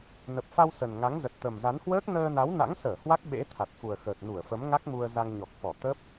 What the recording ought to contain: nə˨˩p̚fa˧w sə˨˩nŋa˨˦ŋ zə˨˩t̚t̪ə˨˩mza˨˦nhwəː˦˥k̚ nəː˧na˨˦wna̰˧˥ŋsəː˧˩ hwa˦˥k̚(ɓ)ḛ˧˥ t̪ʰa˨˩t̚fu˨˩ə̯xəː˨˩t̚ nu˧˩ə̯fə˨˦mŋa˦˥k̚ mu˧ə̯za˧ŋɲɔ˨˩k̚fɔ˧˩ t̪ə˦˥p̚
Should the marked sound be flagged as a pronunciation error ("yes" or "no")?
no